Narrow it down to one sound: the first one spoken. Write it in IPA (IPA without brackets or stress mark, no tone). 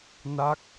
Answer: n